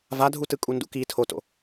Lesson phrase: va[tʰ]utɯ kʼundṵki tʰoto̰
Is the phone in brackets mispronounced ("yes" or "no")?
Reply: yes